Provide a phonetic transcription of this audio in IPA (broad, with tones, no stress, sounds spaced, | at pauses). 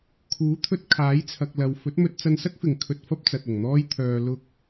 kʰ uː˨˥ t̪ʰ ɵ˧ t̚ kʰ aː˨˥ j t͡sʰ ɐ˨ k̚ l ɐ˨ w f ɵ˨˥ t̚ m ɵ˧ t̚ t͡s ɐ˧ n s ɐ˥ k̚ f ɪ˨ ŋ kʰ ɵ˧ t̚ f ɐ˥ p̚ t͡s ɐ˨ t̚ ʊ˨˩ ŋ n̪ ɔː˥ j t̪ʰ œː˧ l ʊ˧ k̚